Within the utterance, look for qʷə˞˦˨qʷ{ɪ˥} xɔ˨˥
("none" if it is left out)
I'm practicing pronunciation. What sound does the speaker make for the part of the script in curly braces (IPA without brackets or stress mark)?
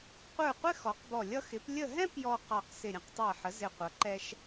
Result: ɪ˥